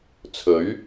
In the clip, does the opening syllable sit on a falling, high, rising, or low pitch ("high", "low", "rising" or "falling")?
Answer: rising